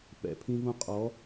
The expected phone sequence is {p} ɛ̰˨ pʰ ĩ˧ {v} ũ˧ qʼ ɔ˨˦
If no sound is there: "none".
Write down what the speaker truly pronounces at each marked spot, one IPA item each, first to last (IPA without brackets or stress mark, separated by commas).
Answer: p, v